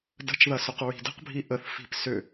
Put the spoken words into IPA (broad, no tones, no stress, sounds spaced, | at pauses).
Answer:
d ə̤ t͡ʃ ð ɐ s ʏ q ɹ i̤ d ə̤ q bʱ i ʔ ə θ f i̤ p s ʏ